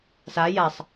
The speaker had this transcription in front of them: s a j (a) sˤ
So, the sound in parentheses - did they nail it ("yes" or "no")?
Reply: yes